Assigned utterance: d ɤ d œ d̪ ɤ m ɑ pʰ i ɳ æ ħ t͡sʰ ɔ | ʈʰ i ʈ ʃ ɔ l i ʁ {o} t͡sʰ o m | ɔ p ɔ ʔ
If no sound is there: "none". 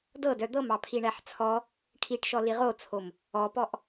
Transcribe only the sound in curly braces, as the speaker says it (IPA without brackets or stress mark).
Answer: o